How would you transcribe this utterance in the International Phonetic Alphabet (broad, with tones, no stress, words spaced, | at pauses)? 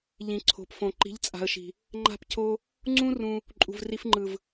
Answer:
ʎĩ˨ǀʰo̤˨pfõ˨ ǃi̤˨˦ʎt͡sʼa̤˨ə̯ʃi̤˨ | ŋ͡ǃa̤˦˨p cʰo˦ | ŋ͡ǀũ˦ rũ˦ | ǃʼṳ˨vri˧fŋ͡ǃɯ˨v